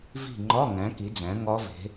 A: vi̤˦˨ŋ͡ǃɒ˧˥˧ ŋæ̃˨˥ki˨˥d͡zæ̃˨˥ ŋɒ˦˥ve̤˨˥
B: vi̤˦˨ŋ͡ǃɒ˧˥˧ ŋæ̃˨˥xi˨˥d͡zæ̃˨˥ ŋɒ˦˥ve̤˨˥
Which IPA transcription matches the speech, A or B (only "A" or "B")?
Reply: A